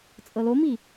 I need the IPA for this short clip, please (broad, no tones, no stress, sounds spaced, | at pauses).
t͡sʼ ɤ l o m i